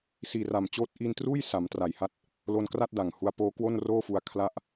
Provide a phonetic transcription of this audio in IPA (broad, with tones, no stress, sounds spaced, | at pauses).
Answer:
s iː˨˩ r a˨˩ m t͡ɕ oː˦˥ t̚ ʔ i˧ n t r uː˥˩ j s a˩˦ m t r a˨˩ j h a˥˩ t̚ | l o˧ n k r a˥˩ t̚ d a˨˩ ŋ h u˦˥ a̯ p oː˦˥ k w o˥˩ n r oː˥˩ f u˧ a̯ kʰ l a˦˥ ʔ